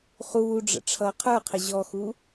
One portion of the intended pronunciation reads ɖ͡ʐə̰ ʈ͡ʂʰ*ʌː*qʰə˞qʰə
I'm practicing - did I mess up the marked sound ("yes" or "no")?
no